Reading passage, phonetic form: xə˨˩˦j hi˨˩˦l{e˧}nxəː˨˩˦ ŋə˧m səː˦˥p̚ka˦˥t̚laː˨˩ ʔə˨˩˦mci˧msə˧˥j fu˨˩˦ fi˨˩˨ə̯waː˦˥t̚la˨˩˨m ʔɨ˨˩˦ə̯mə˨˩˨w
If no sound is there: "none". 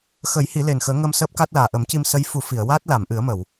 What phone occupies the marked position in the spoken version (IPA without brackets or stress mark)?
e˨˩